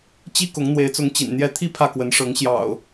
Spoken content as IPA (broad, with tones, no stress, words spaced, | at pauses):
t͡ɕi˦kʊ˨˦ŋ n̪we˨˦ɪ̯t͡sʊ˨˦ŋ t͡ɕḭ˨˩nn̪jɛ˥˨ t̪ʰi˥˨ pʰä˥˨kwə˨˦nʂɤ˨˦ŋ ɕjɑ̰˨˩ʊ̯